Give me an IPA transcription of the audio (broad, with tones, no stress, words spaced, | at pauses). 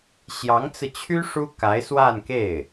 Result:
ɕjɑ˧˥ŋt͡sɹ̩˧t͡ɕʰy˥ ʂu˥ka˧˥ɪ̯swa˥˧nke˥˩ɪ̯